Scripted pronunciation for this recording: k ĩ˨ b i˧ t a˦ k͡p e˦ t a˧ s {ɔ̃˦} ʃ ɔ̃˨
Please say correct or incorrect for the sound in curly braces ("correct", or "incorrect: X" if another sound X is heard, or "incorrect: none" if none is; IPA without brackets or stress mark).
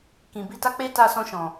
incorrect: ɔ̃˧